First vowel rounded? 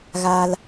no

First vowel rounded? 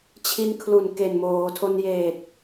no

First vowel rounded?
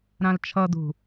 no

